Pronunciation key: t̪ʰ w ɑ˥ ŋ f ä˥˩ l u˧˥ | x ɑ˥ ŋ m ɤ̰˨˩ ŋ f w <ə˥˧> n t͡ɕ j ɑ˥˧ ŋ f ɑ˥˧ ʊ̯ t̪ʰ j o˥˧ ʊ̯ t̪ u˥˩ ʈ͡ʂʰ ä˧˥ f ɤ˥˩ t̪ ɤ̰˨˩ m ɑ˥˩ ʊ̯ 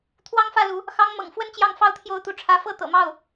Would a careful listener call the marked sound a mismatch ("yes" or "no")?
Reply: no